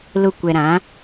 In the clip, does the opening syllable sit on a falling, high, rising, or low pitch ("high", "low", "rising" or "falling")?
low